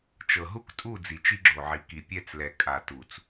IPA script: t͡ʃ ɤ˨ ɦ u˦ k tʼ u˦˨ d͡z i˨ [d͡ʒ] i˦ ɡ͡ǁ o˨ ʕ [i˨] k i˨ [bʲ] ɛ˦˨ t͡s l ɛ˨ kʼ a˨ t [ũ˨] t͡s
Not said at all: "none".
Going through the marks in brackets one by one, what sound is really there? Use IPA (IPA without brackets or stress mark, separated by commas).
t͡ʃ, i˨, pʲ, u˨